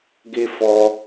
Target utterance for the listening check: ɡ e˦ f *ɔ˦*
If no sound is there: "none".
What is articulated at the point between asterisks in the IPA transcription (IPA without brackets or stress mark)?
ɔ˦